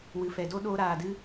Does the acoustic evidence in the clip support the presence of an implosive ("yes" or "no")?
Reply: yes